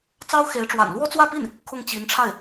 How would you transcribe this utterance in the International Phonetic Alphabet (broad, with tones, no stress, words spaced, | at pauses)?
t͡sɑ˥ʊ̯xe˧˥ɪ̯ʈ͡ʂwa̰˨˩n lwɔ˥t͡swä˥˧pi˥˩n | kʰʊ˥˩ŋt͡ɕi˧˥nʈ͡ʂʰa˥˩ɪ̯